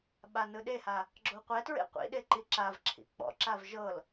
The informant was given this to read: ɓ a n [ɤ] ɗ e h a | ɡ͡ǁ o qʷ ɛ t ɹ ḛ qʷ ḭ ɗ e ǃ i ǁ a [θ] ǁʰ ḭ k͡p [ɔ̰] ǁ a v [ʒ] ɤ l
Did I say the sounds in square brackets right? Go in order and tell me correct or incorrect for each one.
incorrect, incorrect, correct, correct

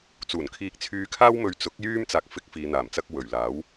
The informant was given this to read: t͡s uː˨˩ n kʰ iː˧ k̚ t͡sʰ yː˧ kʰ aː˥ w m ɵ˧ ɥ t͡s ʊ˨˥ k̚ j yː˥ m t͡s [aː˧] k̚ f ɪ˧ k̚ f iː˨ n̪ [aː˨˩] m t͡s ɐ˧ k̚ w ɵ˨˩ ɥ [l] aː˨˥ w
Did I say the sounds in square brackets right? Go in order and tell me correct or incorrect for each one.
correct, correct, correct

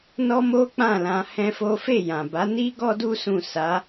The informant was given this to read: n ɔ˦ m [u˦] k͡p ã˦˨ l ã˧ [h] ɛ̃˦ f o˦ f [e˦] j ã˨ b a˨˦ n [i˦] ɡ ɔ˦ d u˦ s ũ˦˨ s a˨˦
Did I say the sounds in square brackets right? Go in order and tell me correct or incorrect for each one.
incorrect, correct, incorrect, correct

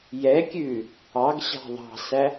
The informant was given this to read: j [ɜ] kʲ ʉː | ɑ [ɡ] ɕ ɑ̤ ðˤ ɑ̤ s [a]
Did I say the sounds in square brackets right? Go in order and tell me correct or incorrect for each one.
incorrect, correct, incorrect

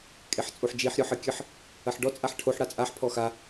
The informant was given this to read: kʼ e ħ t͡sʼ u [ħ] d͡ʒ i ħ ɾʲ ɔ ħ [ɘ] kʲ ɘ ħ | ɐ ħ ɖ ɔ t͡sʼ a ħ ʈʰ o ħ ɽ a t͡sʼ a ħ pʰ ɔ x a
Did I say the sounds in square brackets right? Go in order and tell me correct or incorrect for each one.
correct, correct

